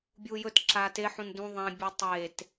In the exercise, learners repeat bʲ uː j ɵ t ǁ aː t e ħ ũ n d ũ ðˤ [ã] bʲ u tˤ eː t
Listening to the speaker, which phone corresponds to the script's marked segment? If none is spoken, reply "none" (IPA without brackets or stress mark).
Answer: ã